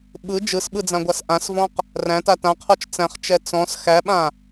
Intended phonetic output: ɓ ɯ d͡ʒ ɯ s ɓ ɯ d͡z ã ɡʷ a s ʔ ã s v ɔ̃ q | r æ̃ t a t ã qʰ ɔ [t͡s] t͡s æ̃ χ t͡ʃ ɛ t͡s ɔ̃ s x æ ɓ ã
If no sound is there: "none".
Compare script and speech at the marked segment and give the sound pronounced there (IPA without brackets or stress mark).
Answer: t͡ʃ